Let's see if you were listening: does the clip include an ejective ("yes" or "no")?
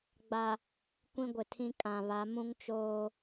yes